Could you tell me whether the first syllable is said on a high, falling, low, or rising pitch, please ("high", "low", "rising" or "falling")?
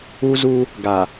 high